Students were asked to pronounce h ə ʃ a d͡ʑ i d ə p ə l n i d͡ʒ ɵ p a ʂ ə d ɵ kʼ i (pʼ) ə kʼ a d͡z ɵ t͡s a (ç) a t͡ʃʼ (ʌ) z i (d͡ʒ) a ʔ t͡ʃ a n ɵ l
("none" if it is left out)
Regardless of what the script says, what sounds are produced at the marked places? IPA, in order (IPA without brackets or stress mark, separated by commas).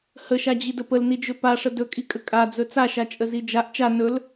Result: kʼ, ʃ, ə, d͡ʒ